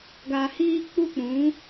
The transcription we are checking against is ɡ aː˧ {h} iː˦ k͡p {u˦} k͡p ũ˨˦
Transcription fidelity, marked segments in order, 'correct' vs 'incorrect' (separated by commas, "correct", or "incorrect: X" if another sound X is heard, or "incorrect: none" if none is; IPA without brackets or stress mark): correct, correct